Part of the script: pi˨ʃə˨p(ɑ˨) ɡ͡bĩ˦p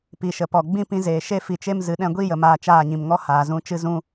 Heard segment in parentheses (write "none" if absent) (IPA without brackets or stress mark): ɔ˨